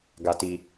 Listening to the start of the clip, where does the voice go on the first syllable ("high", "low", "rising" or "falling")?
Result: low